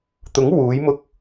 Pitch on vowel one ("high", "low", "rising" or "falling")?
rising